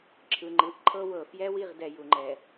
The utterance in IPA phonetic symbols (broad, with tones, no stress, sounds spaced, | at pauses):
ǁʰ ɯ˨ ŋ͡ǃ ɯ˨ ʔ ǃʰ ɤ˦ w ɤ˨ f j ɛ˦ w i˦˨ ʁ d ɛ˨ j u˨ ŋ͡ǃ ɛ˨